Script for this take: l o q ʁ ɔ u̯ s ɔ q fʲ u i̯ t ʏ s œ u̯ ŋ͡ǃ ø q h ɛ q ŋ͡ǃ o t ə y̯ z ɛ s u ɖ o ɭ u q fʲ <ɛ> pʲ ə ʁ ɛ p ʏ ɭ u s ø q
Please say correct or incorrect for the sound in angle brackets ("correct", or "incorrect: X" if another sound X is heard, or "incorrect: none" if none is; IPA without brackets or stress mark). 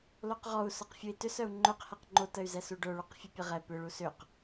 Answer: incorrect: ø